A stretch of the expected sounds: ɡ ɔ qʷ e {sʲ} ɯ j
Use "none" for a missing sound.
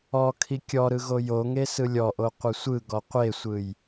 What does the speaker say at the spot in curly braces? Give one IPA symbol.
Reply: sʷ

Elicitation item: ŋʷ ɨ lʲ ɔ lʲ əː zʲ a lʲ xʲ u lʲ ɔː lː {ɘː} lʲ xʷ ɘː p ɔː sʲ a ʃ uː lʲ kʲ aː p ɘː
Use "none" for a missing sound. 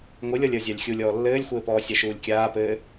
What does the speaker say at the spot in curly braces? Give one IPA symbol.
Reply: ɘː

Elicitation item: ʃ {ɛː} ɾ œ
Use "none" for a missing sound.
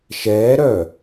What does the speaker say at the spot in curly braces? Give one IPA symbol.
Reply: ɛː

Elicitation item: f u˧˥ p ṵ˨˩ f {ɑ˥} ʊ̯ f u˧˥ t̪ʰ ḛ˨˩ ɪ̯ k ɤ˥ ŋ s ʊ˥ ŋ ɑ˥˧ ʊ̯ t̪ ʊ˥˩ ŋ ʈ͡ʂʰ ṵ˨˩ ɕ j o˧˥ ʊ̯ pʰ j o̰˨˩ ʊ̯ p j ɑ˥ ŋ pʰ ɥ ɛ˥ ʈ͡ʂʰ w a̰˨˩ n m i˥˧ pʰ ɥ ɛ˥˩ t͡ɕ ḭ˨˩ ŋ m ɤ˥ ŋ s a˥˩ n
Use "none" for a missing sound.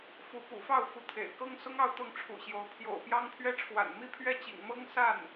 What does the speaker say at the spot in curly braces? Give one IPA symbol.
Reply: ɑ˥˩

